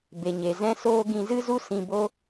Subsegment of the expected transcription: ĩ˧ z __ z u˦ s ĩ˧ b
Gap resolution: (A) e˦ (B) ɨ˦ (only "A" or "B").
B